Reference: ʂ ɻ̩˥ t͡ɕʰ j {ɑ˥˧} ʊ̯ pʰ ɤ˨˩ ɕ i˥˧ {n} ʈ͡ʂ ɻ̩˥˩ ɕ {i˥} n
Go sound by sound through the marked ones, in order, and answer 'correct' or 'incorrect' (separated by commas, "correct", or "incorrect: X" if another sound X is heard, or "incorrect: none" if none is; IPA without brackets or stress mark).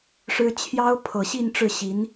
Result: incorrect: ɑ˥, correct, incorrect: i˧˥